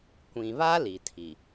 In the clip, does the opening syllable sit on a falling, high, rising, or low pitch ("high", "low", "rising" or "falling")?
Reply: low